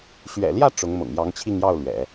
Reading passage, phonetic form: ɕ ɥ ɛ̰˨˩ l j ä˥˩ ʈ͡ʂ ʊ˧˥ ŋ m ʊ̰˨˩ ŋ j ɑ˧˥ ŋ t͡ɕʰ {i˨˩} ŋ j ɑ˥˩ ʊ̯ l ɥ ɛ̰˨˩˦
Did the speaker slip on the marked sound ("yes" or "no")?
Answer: yes